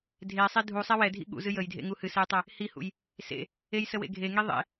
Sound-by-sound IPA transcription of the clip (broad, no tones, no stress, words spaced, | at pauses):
dʱesˤe dʱusˤɛ wɛdʱḭ ɠṵzɨ jəjdʱḛŋu hɨsejtˤɛ | hihṵj | sḛ | ejsəwḛ ɡʱeŋi ðˤḛ